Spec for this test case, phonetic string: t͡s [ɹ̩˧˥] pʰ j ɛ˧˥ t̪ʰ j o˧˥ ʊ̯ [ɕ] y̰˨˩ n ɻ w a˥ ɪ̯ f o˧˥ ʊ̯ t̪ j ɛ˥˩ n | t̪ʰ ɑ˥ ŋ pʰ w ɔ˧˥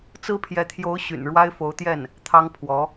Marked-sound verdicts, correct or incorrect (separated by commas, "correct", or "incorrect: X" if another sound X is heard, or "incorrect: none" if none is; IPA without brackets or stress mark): incorrect: ɹ̩˥, correct